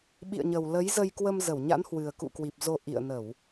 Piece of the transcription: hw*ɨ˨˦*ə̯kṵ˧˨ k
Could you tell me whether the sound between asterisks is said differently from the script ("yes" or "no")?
yes